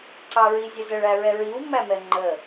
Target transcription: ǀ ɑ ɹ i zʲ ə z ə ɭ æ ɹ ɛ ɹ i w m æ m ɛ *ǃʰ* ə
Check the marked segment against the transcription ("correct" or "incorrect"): incorrect